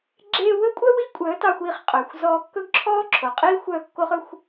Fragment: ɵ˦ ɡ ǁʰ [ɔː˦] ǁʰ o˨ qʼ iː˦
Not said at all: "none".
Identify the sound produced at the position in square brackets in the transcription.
ɔː˦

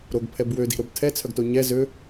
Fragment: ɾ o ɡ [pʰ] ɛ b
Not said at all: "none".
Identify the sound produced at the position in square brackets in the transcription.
pʰ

